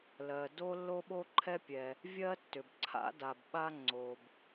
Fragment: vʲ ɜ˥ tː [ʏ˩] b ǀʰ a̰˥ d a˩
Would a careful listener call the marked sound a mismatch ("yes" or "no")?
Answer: no